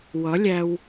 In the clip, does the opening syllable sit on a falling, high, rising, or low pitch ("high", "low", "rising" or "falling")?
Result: rising